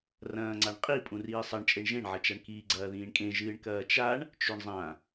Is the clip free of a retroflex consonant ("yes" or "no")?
no